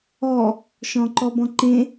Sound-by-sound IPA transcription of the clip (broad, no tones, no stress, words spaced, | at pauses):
ɔ | ʃɔ̃ǃɔbɔ̃ǃẽ